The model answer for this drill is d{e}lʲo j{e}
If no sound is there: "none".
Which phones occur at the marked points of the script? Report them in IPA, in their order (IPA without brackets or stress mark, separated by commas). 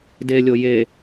e, e